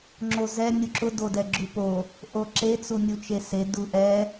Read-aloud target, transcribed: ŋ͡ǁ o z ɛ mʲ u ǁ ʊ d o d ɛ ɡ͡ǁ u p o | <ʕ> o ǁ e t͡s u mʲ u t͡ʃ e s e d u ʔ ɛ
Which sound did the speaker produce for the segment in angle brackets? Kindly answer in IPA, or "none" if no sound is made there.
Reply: ʔ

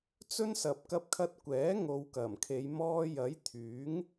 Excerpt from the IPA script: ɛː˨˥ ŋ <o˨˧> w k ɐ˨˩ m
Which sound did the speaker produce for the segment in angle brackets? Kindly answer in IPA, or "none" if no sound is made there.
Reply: o˨˧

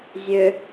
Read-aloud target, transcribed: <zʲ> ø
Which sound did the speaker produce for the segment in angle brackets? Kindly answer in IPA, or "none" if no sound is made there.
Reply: zʲ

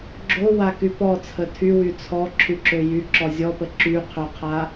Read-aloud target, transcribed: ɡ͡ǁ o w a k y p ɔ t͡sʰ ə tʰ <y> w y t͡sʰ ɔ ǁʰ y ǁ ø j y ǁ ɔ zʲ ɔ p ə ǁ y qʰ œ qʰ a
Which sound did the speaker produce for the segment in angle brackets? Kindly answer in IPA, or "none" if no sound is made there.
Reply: y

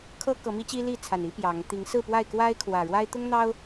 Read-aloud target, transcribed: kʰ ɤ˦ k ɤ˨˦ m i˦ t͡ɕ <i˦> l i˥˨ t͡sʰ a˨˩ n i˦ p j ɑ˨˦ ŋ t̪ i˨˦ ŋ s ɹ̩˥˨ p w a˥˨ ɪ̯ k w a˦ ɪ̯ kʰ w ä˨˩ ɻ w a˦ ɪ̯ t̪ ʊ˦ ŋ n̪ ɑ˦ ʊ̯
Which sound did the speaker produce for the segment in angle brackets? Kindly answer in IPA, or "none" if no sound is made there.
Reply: i˦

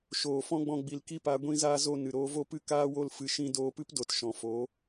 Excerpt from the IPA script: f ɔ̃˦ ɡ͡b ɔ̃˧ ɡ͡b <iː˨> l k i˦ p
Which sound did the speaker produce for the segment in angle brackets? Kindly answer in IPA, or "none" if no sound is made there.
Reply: i˨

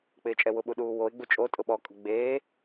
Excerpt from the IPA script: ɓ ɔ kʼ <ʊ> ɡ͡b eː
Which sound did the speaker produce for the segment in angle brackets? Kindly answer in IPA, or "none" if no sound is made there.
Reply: ʊ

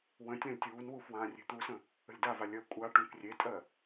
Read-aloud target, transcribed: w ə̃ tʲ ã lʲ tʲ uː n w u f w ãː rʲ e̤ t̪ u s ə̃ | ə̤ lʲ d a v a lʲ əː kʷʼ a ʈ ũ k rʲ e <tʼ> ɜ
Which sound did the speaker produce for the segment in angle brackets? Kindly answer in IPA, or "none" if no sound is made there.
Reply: tʼ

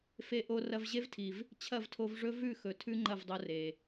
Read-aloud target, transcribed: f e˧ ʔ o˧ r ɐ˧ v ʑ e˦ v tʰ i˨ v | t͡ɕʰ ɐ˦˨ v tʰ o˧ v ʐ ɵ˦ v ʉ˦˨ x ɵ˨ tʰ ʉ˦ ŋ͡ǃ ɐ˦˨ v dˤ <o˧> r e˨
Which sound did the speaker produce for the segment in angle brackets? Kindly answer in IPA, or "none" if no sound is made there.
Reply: o˧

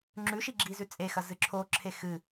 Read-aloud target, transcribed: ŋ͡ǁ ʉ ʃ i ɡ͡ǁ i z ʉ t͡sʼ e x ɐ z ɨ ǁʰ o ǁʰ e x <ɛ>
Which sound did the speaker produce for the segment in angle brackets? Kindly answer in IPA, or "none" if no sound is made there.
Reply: ɨ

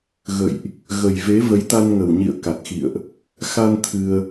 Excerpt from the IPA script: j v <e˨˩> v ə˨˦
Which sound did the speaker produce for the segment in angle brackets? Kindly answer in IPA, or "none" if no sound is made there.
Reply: e˨˦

